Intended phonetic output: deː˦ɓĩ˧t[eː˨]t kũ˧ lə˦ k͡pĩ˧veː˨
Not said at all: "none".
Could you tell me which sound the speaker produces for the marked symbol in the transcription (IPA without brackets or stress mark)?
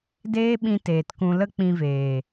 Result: eː˨